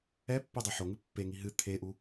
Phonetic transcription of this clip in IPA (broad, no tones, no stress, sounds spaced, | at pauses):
ɛ pː e dˤ o ħ o ŋ ɨ pː e ŋ i ɦ ɨ t̪ʰ e ʔ u